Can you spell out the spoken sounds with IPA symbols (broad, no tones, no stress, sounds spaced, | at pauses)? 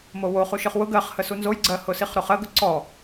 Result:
m o w o χ u ʃ ɯ χ w ʊ ɡ ɜ χ h ə s u n z o j ɡ͡ǀ ɜ h ʊ s i χ ɾ o χ ɜ ɡ ʊ ǀ ɔ